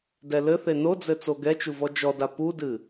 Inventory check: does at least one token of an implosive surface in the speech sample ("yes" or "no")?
no